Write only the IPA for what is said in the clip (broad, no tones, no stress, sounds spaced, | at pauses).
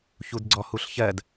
ç u d ɡ͡ǀ ɔ h u ɬ ç ɜ d